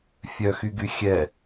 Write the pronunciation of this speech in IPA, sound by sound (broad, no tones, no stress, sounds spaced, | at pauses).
fʲ œ x y ɡ y xʲ ɛ